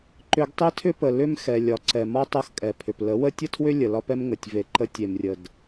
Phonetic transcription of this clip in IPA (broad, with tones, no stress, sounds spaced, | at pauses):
ǃ ʏ˧ ɡ tˤ e˦ tʰ ʏ˦ p ə˨ l ʏ˦ m x ɛ˨ lʲ ɒ˨ ǀ ɛ˨ m ɒ˦ tˤ ʌ˦ x kʼ ɛ˨ pʰ ʏ˨ p l ə˨˦ w ə˦ tʲ ə˦ tʰ w ʏ˦ lʲ ə˨ l ɒ˦ p ɛ˦ m ŋ ə˨ tʲ v e˧ ǃ ə˦ tʲ e˨ m rʲ ə˨ d